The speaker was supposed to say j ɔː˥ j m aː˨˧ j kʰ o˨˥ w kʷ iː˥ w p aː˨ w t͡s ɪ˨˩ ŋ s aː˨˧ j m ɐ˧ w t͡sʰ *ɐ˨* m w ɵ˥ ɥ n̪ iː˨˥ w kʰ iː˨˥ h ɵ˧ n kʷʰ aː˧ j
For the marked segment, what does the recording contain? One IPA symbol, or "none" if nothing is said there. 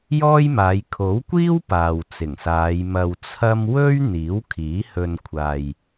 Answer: ɐ˥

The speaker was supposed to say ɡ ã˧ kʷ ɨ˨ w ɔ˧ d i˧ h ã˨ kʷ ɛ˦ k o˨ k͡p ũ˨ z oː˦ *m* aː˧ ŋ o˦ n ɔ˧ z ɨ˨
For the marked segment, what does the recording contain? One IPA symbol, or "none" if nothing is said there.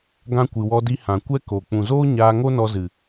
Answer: ɲ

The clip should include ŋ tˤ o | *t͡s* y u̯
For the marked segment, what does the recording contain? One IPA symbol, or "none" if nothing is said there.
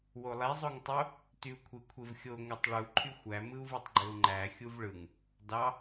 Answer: t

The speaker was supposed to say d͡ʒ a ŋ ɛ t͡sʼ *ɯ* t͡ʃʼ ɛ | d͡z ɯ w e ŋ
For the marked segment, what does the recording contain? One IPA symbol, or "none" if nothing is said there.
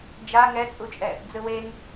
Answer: u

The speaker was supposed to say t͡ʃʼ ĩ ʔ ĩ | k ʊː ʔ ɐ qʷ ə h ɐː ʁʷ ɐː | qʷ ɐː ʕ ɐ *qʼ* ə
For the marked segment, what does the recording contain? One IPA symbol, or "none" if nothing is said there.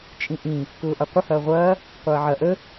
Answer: ʔ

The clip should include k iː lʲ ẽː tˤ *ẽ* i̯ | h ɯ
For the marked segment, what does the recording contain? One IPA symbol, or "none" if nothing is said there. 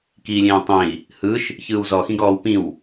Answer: ẽ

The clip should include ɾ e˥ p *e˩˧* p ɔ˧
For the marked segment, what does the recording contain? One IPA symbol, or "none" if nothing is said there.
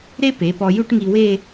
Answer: e˩˧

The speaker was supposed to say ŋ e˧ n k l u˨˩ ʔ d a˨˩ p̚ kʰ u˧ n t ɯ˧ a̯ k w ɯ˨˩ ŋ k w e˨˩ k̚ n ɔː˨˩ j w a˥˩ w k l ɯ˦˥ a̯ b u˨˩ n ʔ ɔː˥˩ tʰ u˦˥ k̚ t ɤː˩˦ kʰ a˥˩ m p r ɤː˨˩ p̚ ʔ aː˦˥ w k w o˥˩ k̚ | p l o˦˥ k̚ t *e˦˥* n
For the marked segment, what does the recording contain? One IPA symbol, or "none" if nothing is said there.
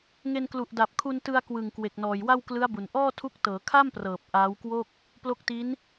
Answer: i˦˥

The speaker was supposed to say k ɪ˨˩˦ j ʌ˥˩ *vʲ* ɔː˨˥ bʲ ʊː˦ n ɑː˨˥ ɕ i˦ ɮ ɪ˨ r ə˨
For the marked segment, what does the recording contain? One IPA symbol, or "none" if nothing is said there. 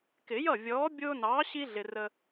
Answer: vʲ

